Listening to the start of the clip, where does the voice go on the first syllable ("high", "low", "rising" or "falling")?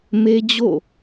high